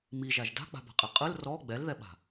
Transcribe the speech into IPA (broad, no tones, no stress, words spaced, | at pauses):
miʒaʒ da̤k͡pa̤ba̤qʼe qʼɯl rɔ ɡ͡bɛlðɛɓa̤